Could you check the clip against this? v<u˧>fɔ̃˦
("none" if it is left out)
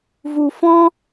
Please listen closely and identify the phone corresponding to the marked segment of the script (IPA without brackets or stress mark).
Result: u˧